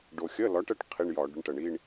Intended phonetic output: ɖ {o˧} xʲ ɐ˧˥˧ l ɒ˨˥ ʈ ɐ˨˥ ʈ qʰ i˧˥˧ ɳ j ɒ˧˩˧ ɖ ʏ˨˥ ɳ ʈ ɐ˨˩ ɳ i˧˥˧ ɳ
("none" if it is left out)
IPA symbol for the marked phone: o˧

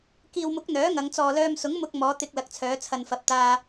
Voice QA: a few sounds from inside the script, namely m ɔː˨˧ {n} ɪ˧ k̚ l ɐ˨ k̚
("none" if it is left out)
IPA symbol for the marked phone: t̪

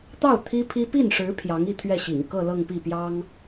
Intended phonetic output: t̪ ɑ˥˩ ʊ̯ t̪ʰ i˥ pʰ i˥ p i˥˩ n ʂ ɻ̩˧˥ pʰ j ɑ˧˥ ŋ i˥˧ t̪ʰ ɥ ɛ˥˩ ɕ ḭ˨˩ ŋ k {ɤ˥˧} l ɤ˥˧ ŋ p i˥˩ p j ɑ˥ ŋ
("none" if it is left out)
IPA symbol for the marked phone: ɤ˥˧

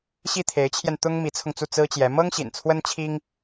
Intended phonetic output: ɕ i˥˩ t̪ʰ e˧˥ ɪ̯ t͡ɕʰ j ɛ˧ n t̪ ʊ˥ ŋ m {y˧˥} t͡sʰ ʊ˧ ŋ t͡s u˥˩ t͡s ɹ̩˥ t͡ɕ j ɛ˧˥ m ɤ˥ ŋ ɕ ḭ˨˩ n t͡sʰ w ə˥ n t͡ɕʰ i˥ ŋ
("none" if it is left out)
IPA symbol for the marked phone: i˧˥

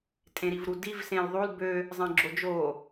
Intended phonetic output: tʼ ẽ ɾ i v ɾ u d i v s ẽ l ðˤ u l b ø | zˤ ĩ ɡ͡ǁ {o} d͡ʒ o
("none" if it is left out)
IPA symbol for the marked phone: o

